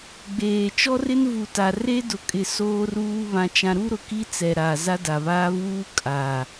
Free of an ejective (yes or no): no